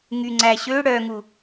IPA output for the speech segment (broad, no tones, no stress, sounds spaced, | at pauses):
ŋ y ŋ͡ǀ æ ɕ ø ɽ œ ŋ u